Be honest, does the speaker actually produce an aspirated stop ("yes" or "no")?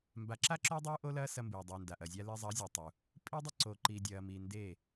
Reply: no